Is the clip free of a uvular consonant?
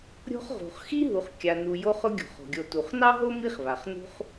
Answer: no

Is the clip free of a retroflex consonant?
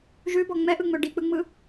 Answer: no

